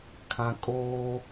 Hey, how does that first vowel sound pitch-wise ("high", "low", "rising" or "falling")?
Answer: low